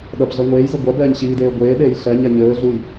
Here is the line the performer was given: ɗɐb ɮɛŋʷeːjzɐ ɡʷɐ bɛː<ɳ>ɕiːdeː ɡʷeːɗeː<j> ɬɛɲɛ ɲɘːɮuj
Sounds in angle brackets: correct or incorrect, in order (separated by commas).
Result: incorrect, correct